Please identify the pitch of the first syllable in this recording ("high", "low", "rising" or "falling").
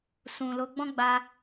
low